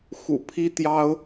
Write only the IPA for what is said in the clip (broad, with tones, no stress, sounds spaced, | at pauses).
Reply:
x ṵ˨˩ pʰ i˥ t̪ j ɑ˥ ʊ̯